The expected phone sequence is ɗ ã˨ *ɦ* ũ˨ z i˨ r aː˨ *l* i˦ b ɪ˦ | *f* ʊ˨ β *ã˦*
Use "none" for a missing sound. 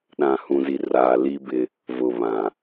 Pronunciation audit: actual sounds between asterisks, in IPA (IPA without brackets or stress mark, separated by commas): h, l, v, ã˨